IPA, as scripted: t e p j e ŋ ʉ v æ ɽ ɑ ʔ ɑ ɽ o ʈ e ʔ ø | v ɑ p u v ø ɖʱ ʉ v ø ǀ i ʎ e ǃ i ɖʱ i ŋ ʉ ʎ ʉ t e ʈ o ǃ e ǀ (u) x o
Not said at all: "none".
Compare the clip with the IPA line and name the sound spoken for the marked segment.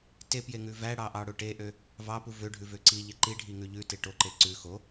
ʉ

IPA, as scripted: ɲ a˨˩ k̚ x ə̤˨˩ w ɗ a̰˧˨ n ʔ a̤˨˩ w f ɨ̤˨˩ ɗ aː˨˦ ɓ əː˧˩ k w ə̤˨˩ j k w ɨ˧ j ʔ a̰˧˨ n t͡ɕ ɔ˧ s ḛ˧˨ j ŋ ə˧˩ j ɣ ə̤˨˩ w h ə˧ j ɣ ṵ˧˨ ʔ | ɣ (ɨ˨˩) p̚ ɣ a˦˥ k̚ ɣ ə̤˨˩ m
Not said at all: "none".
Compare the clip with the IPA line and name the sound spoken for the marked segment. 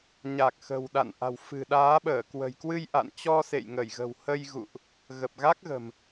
ə˨˩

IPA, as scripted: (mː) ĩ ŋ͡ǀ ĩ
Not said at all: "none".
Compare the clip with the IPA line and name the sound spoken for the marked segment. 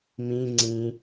m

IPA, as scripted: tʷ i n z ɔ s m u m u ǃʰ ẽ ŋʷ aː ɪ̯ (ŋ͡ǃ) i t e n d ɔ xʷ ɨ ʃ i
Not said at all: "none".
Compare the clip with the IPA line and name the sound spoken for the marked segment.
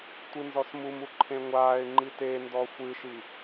ŋ͡ǃ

